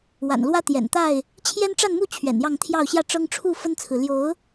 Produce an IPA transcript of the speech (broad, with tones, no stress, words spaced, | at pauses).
wa̰˨˩nlwä˦ t̪jɛ̰˨˩nt̪a˥˨ɪ̯ | t͡ɕʰjɛ˦nʈ͡ʂa˥˨nmu˥˨ t͡ɕʰɥɛ̰˨˩njɑ˥˨ŋt̪ʰjɑ˥˨ʊ̯ ɕjä˥˨ ʈ͡ʂɤ˦ŋʈ͡ʂʰu˥˨ fə˦nt͡sʰɹ̩˨ ljo˨˦ʊ̯